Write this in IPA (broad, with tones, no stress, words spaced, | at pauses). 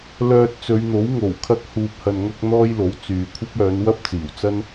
lœː˧t̚t͡sɵ˨˧ɥn̪o˨˥w ŋo˨˩wkʰɐ˧k̚ huː˨p̚hɐ˨nŋɐ˧k̚ n̪ɔː˥jlo˨˥w t͡syː˨kʷʰɐ˥p̚ œː˨˧nwɐ˥p̚ t͡siː˨˩wt͡sɐ˥n